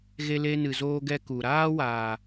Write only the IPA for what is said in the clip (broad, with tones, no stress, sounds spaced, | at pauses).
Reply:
ɣ e˧ l e˧ n ɨ˨ z oː˧ ɡ ɛ˧ k u˨ ɾ aː˦ w aː˨